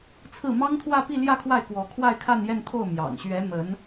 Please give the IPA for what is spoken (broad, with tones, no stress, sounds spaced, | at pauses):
t͡sʰ ɹ̩˥˩ m ɑ˥ ŋ t̪ʰ w ä˥˧ p i˥˧ l j ä˥˧ kʰ w a˥˩ ɪ̯ k w ɔ˧˥ kʰ w a˥˧ ɪ̯ kʰ a˥˧ n j ɛ˥˧ n t̪ʰ o˥˩ ʊ̯ m j ɑ̰˨˩ ŋ ɕ ɥ ɛ˧˥ m ə˧˥ n